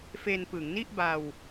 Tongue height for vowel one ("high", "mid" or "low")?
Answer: mid